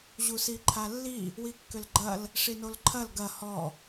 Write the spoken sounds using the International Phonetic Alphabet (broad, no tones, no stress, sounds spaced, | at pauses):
ʑ u s i ǃʰ a lː i | w i kː ʏ l ɡ͡ǃ ɐ l | ʂ i n o l ǃʰ ɐ l ɡ ɐ h ɔ